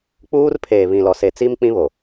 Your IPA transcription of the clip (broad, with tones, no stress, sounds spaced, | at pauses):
k͡p uː˦ r pʰ eː˨ β ĩ˨ l ɔ˨ s e˨ t͡s i˦ m k͡p ĩ˦ β o˨